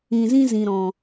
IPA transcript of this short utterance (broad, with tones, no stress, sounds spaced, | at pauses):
ĩ˨ z ĩ˦ z ĩ˨ ɾ ɔ̃˨